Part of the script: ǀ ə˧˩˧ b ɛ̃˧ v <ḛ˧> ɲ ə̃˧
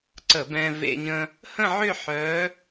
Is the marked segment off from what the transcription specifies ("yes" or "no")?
no